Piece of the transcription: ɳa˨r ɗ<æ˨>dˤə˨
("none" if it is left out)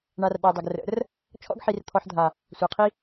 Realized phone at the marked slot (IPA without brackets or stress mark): a˨